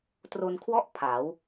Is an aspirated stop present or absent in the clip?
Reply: present